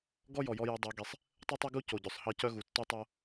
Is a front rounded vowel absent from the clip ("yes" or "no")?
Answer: no